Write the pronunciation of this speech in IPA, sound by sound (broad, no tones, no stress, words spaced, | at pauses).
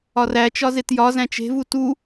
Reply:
ɒræt͡ʃɒ zetjɒzæ̃ t͡ʃe̤vu tu